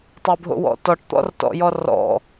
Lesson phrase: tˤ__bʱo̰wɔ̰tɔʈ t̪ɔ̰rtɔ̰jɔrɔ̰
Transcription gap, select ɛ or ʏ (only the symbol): ʏ